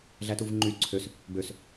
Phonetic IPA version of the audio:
ɮ æ t u v ŋ͡ǃ y ǀʰ ø s | b ø s

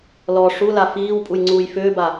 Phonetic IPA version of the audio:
l ɔ ʂ u l a f iː w pʼ u j ŋ͡ǀ uː j f ʏː b a

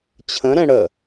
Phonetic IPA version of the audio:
t͡ɕʰ ə̃ ɾ ɛ̃ ɽ ə

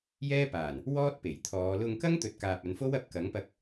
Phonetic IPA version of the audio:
j ɛː˥ p aː˨˩ n | w ɔː˥ t̚ p e˨˩ j t̪ʰ ɔː˨˧ l ʊ˧ ŋ k ɐ˥ ŋ t̪ ɵ˨ t̚ k aː˨ p̚ ɐ˨˧ n f o˥ w ɐ˧ p̚ k ɐ˨˥ ŋ p ɐ˧ k̚

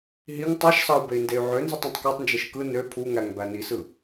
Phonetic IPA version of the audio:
ɦ i ŋ tˤ ɑ ʃ s ɑ u̯ b e i̯ n d e y̯ ʕ ø n z i tˤ ẽ tˤ k o tˤ n d͡ʒ e ʃ k ɯ n ø pʰ u ŋ æ ŋ b æ n i s ɯ

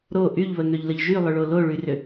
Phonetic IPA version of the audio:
ɾ o ʔ y ʎ β ə ŋ ø ʎ l ə ʎ ʒ y lˠ ʏ ɭ o l o ɭ y r ʏ

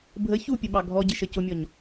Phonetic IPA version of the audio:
bʱ ə ç u pʲ ə ɓ ɑ ɡʱ ɔ ɟ ɪ ʃ ə c ʊ mʲ ɔ ɲ

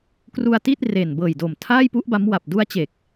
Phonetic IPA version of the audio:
k r u˧ a̯ t i˥˩ t̚ r e˨˩ n b ɤː˨˩ j d oː˨˩ m tʰ aː˥˩ j p u˦˥ ʔ b a˦˥ m w a˨˩ p̚ d u˦˥ a̯ t͡ɕ e˨˩ k̚

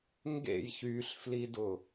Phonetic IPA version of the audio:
ŋ ɡ ḛ j ç y ɬ f l i d ʊ

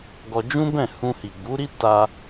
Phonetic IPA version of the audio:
ɡ ɔ˧ d͡ʒ ũ˦ b ɛ̃˦˨ h ũ˧ h i˨ ɡ͡b u˨˦ ɾ i˦ t a˧

